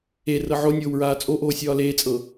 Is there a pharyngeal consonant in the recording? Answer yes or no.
yes